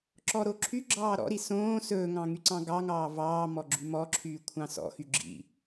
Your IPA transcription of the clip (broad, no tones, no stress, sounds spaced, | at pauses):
ǁ ɔ ɾ o ǁʰ y ɡ͡ǁ ɑː ɾ ɔ̰ ɾ i s õː s ɵː ŋ ɑ̃ ŋ y ǀ ɑ̃ ɡ ɑ ŋ ɑː v ɑː m ɔ ɡ͡ǁ y m ɔ ǁʰ yː kʷʰ ɑ̃ s ɔ̰ x y ɡ͡ǁ ḭ